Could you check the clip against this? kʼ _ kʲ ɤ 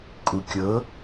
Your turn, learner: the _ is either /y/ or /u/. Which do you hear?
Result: u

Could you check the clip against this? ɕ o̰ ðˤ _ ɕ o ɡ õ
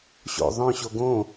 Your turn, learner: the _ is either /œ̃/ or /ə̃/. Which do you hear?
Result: œ̃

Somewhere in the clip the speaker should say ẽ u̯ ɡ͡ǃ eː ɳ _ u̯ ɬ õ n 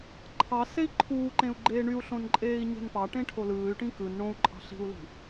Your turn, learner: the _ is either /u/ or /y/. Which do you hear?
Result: y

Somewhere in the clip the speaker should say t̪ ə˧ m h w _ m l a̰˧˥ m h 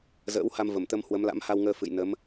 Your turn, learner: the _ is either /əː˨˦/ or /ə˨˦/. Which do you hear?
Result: ə˨˦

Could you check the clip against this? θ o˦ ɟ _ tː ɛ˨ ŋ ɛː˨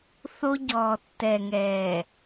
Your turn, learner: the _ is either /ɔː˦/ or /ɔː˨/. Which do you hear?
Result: ɔː˨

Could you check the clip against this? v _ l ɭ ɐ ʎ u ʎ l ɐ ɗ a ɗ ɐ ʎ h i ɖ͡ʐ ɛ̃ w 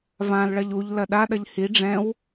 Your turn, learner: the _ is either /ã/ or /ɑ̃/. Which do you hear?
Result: ã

